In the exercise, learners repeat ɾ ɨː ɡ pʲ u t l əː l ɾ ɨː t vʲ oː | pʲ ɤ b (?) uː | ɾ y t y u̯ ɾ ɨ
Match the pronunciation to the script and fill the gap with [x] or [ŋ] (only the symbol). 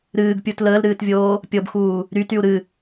x